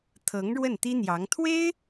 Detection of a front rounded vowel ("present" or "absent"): absent